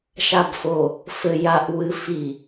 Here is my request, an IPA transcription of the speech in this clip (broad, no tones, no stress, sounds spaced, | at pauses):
ʃ a b f o | f ɘ j a ʔ w ɨ f i